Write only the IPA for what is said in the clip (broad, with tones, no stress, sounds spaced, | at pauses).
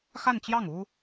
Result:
x a˥˧ n t͡ɕ j ɑ˥˩ ŋ u˥